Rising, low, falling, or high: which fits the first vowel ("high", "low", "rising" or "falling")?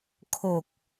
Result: low